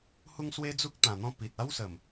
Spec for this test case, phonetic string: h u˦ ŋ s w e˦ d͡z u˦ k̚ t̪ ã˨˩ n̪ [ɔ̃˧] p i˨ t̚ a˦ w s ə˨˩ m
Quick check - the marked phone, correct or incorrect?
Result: correct